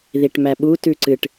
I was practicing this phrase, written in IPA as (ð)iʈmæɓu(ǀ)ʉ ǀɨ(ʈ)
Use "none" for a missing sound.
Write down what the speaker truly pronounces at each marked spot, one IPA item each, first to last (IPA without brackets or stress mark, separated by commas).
ð, t, ʈ